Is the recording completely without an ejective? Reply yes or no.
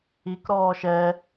yes